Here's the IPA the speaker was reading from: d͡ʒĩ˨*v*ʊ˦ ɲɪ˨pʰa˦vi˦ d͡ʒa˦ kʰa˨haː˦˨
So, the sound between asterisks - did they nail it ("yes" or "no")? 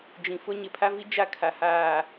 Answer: no